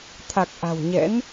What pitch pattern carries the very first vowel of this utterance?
low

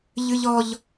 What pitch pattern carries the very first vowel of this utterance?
high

